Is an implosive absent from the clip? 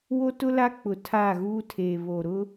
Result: yes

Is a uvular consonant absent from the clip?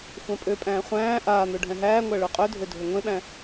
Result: no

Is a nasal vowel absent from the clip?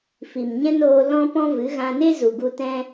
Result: no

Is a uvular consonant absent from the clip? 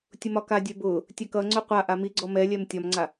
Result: no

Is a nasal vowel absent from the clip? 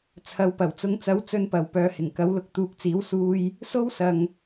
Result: yes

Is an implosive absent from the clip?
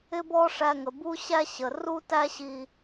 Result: yes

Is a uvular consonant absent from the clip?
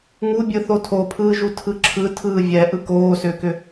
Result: yes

